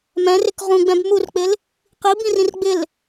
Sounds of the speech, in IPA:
m ɛ̃ r ɪ k ʁ ũ ɡ͡b ɛ̃ b m u r k͡p ɪ l | q i b ĩ r ĩ r ɡ͡b ɪ l

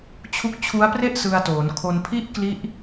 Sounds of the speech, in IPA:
t͡ɕʰ u˦˥ k̚ t͡ɕʰ u˦˥ a̯ p r e˥˩ ʔ s ɯ˧ a̯ t oː˩˦ n kʰ o˧ n pʰ i˥˩ ʔ k l i˦˥ ʔ

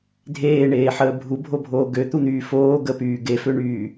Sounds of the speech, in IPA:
dʱ eː ɳ eː ħ əː bʱ u bʱ o bʱ oː ɡ ø t̪ u n̪ yː f oː ɡ ə p yː ɡ e f ø ɳ yː

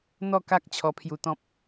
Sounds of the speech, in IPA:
n̪ ɔ˥˧ k a˦ k̚ t͡ɕʰ ɔ˧ pʰ j u˧ t̪ ɔ̃˦ p̚

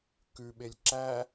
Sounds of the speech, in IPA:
k ʉ ɓ e lʲ ǁ æ

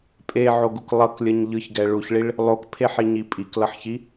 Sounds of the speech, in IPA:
pʼ e ʕ o ɡ u k lˠ ʌ k lʲ ʌ ɲ ʎ ɯ ç ɡ ɛ ɭ u ç ɭ i ɭ | lˠ o k pʰ e ħ i ɲ i pʼ i k l ʌ ħ ç i

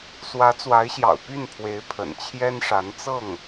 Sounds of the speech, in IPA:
s w ä˧˥ t͡s w a˧˥ ɪ̯ ɕ j ɑ̰˨˩ ʊ̯ p y˥˩ n pʰ w e˧˥ ɪ̯ pʰ ə̰˨˩ n t͡ɕʰ j ɛ˥ n ʂ a˧˥ n t͡s ɤ˥˩ ŋ

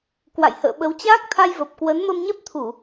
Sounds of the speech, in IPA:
k w a̰˧˨ j h ə̰ː˧˨ ɓ ə˨˦ w t͡ɕ aː˦˥ k̚ t̪ʰ a˧ j v ə˨˩ p̚ k w ə˨˦ n m ə˧ m ɲ ɛ˦˥ p̚ t̪ʰ u˧˩˨

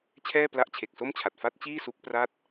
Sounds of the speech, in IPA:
t͡ɕʰ ɛː˥˩ p l a˦˥ ʔ t͡ɕʰ e˨˩ k̚ s o˥˩ m t͡ɕʰ a˨˩ t̚ f a˦˥ t̚ t͡ɕ iː˥˩ s u˦˥ k̚ p r a˥˩ t̚

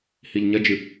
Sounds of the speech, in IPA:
h i ʎ ɲ ɐ d͡ʒ ɨ

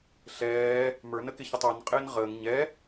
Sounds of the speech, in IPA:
ɬ ɛː | m ə˞ n ə k ɪ ç ə tˤ ɔ n qʼ ɪː n ʁ əː ŋ ɲ ɛ

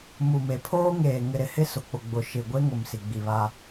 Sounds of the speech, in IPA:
m u˨ m e˨ pʰ oː˦ ŋ eː˨ ŋ ɪ˨ ɾ ɪ˨ h ɪ˦ s ʊ˨ k͡p ʊ˨ ɡ͡b ʊ˨ ʃ ɪ˨ ɡʷ e˦ ŋ ʊ˨ m s i˨ ɡ͡b i˨ β a˦

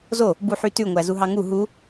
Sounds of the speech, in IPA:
z o | b u ħ y t ʉ ŋʷ æ z u ɦ ɑ ŋ u ɦ u

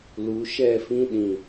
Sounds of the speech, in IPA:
l u˨˦ ʃ ɛ˦˨ f ĩ˦ ɗ ĩ˨

